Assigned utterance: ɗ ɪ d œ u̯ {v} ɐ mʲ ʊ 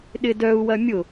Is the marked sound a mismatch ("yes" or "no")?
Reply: yes